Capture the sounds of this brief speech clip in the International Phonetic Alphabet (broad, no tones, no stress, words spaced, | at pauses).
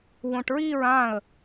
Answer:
wõʈɹiɹ ãə̯